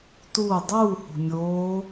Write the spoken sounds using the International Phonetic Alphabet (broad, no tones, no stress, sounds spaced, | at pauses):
t uː dˤ uː h o̤ mʲ oː